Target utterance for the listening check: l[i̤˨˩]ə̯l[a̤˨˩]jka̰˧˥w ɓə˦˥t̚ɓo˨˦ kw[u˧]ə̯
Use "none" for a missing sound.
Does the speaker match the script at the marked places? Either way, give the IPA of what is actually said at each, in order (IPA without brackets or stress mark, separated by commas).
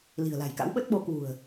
i̤˨˩, a̤˨˩, ṳ˨˩